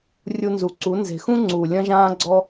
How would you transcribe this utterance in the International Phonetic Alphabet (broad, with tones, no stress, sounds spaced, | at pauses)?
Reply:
rʲ u˧ n z u˨ ǀ u˨˦ n z e̤˨ x ũ˦ ŋ͡ǀ u˨ lʲ ɐ̃˦ ʒ ãː˦ ɡ͡ǀ ɔ˦